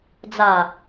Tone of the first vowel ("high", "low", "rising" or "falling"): low